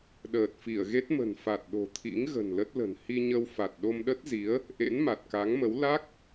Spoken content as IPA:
ɗəː˨˩t̚fi˧˩ə̯ɣe˦˥t̚mə̤˨˩n fa˨˩t̚ɗo̤˨˩t̪ʰḭ˧˥ŋ ɣə̤˨˩nlə˦˥t̚lə̤˨˩n hi˧ɲə˧wfa˨˩t̚ ɗo˧mɗə˦˥t̚zi˨˦ə̯ | ʔḛ˧˥nma˨˩t̚ka˨˦ŋmə˨˦w la˦˥k̚

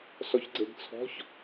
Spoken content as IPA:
sɔçɡ͡ǀeɡt͡sʰɔ̤ç

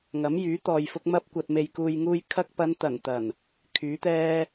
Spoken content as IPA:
ŋɐ˨˥mjyː˨˥ t̪ɔː˨jfʊ˧k̚ mɐ˧p̚ kʷɐ˨t̚me˨jkuː˨jŋuː˧j kʰɐ˧k̚pɐ˨˧nt̪ɐ˨˩n t̪ɐ˨˩n | kʰyː˨˥t̪ɛː˥

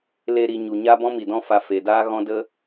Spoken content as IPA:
le˧ ɾi˨ ɲu˨ɲa˦bɔ̃˦ mi˨dɔ̃˦fa˧fe˨ daː˦ɣɔ̃˦də˦

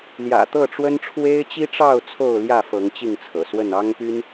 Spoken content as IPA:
ljä̰˨˩ t̪ɤ˥˨ʈ͡ʂwə˦nʈ͡ʂʰwe˦ɪ̯ t͡ɕi˦ʈ͡ʂɑ˥˨ʊ̯ t͡sʰo˥˨ʊ̯ljä˥˨fɤ˨˦ŋ t͡ɕi˥˨ŋt͡sʰɤ̰˨˩swə˥˨n ɑ˦ŋpy˦n

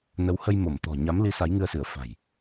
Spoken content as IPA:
nə˨˦whə˧j mo˧˩m t̪ɔ̤˨˩ ɲa˨˦mli˨˦ sa˨˦jŋɨ˧ə̯sɨ˧˩ə̯ fa̤˨˩j

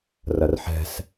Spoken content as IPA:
rɐrħɛ̤s

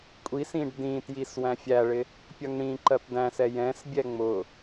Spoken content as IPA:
kʷʼis ĩɖdĩtjis wæ̃fʲæɭɪ | pʲʌŋɽĩǃɜp dæ̃sɛ jɛ̃sbʲɛ ŋ͡mʊ

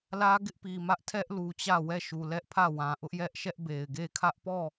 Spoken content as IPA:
lä˦ɡɪ˦ʔpi˨ mä˦ʔtʰɛ˦ʔlu˨ t͡ɕä˦˨wɛ˦˨ ʃu˨lɛ˦ʔpʰä˦˨wã˨ ʔʊ˦ʔjɛ˦ʔ ʃɛ˦ʔbe˨ɪ̯ɡe˦˨ kʰä˦ʔpɔ˦˨

